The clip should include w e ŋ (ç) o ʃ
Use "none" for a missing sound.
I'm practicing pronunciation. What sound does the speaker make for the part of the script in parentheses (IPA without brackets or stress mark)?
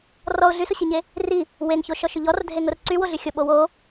ç